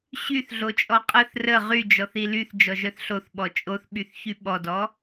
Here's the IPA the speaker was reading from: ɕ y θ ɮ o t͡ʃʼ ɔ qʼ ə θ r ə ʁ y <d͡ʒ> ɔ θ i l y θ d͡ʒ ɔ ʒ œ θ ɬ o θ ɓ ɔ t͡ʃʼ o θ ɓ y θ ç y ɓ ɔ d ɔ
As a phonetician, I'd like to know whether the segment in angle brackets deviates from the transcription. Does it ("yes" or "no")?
no